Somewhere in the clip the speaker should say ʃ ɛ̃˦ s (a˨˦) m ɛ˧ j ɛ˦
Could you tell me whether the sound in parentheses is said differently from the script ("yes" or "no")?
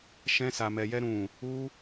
yes